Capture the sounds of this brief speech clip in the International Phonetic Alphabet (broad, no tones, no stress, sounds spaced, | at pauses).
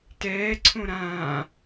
t ɛː ǀʰ õ ɾ ãː